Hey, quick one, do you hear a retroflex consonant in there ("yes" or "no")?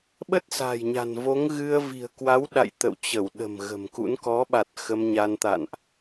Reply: no